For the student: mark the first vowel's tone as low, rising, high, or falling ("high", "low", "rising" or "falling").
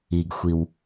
low